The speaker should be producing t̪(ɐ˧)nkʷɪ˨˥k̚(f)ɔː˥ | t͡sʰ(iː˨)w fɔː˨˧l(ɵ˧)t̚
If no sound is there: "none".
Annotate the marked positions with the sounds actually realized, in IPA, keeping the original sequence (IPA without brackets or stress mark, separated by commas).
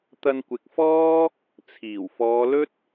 ɐ˧, f, iː˨˩, ɵ˥